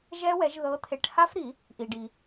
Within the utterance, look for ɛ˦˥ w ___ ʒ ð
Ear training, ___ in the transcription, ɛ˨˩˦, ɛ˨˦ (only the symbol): ɛ˨˦